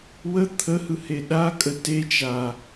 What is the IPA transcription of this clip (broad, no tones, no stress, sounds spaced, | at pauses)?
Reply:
w ə t̪ʰ ə h ɯ h e ɗ a kʼ ə t e t͡ʃ a